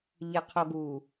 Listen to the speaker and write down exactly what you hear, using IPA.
ʎ ɘ qʰ o ɡ u

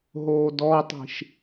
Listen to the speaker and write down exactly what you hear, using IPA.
ɦ oː d ɔ tˤ i̤ ʃ

